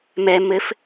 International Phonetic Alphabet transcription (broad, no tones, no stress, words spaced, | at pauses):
mɛ mɘf